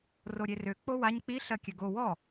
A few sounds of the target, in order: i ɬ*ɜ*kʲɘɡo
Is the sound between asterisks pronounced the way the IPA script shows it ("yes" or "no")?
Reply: yes